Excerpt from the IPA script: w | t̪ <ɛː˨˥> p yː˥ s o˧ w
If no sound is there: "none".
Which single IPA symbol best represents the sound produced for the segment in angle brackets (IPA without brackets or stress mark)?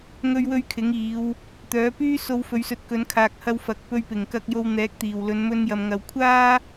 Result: œː˨˥